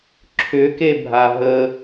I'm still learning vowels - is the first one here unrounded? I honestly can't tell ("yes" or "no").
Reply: no